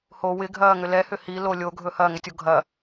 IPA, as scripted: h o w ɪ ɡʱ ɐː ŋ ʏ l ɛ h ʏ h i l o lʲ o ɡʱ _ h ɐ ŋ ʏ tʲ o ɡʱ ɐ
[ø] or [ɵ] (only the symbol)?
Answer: ɵ